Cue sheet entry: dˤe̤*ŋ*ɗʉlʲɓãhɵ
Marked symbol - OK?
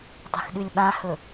no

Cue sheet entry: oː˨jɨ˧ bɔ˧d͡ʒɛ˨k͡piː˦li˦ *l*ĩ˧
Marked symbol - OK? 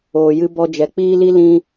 yes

